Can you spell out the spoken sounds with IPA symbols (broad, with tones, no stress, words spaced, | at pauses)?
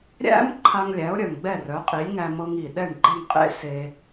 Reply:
ɾʲæ̰˥m ǃʰa˧ŋlʲæ˩˥ʊ̯ɾʲœ˩ŋ ɡ͡bɛ˥˩rœ˩˥qʼi˩˥lʲ ŋæ˧mɤ˧ŋ i˩ɗɛ˥˩ɳɡ͡ǃe˥˩ŋ qʼḛ˥se˧